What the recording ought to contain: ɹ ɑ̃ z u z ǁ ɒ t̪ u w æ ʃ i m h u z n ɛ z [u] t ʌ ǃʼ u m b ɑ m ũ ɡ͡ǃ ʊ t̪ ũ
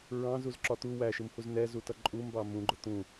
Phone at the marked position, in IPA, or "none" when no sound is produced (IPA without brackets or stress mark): u